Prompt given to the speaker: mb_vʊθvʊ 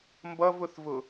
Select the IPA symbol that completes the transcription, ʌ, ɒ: ʌ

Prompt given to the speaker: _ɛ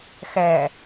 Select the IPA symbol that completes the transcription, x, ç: x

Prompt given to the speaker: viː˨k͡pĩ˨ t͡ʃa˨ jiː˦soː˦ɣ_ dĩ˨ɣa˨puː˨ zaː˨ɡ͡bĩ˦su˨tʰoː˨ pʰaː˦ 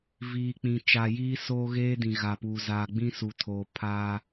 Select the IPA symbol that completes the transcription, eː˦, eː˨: eː˦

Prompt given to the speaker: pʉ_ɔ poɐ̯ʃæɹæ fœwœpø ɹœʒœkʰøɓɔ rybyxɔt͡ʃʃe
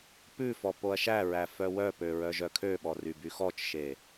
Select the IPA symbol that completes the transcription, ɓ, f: f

